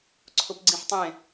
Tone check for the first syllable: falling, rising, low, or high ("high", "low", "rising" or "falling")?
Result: high